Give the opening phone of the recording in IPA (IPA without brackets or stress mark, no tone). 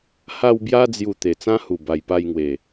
h